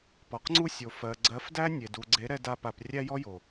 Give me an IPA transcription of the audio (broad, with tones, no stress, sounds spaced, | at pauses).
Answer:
p ɔ˨ q ŋ͡ǀ u˦ sʲ o˨ f ɜ˨ ɡ͡ǀ ɜ˨˦ f d æ˦ nʲ e˨ d u˨ ɡ͡ǀ e˨˦ ɾ ɛ˧ d a˧ p a˨ p rʲ æ˦ j ɔ˦ j o˨